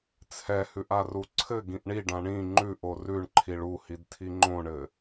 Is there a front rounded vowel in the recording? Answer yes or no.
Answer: no